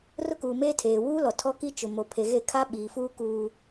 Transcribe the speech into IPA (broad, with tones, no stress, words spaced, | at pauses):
rʊ˦kuː˨meː˦ tʰeː˨wuː˦lɔ˨ tʰɔ˦ki˦ t͡ʃʊ˨ mo˨pʰe˨ɣe˦˨kʰa˦ ɓiː˨fuː˦ kuː˦